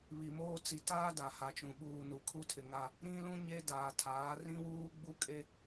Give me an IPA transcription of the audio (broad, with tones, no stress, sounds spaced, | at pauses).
β i˨ m oː˦ t͡s i˨ t aː˦ d a˨ h a˨ t͡ʃ ũ˨ ɓ uː˨ n u˨˦ kʰ u˦ tʰ ɪ˨ ŋ a˦ | ɾ ĩ˦ l ũ˦ ɲ e˦ d aː˨ tʰ aː˨˦ r ĩ˦ w uː˦ ɡ͡b u˦ kʼ e˦